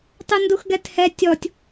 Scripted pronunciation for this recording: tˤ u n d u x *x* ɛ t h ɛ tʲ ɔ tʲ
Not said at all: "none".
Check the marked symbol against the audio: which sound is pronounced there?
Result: ɡ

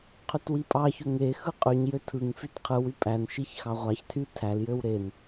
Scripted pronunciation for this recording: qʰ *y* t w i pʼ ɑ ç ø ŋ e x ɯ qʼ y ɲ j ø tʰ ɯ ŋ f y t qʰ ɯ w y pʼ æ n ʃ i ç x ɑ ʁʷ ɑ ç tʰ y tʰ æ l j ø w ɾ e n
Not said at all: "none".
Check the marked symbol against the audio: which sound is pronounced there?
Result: y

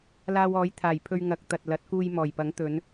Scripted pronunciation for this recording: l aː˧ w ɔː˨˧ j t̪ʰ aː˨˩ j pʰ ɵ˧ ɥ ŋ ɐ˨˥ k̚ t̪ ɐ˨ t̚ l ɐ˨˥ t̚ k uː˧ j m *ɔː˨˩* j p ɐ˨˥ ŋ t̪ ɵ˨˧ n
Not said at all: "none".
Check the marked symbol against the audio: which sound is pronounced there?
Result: ɔː˨˩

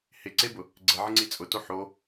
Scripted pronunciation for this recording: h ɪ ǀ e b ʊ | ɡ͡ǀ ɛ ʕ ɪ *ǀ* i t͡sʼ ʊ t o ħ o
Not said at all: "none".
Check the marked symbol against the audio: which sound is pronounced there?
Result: ŋ͡ǀ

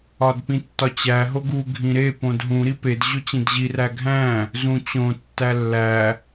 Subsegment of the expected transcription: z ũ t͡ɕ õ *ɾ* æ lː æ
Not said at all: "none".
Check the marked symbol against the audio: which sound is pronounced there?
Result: tː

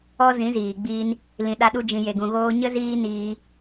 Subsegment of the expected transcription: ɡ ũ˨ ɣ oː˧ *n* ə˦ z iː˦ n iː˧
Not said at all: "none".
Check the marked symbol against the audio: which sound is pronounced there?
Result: ɲ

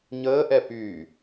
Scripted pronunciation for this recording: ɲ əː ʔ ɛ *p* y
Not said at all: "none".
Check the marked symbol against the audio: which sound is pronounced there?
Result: p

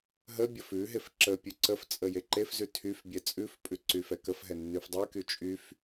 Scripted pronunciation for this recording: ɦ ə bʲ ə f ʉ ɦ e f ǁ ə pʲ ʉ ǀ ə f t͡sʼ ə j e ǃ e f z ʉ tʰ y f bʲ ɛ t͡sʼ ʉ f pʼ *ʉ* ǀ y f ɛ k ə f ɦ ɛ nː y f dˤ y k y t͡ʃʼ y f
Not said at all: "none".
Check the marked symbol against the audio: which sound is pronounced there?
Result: ʉ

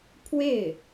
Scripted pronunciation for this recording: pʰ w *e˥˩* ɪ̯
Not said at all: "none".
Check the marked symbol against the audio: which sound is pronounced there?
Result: e˥˩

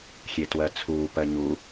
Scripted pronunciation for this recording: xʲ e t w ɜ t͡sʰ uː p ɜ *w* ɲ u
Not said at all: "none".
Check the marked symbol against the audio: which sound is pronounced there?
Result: none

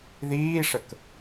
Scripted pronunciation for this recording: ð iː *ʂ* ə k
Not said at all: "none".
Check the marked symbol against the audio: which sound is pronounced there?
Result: ʂ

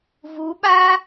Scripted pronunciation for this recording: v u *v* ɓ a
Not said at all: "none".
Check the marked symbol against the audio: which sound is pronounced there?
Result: none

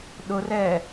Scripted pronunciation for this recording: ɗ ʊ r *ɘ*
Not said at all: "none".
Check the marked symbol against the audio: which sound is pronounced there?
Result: ɛ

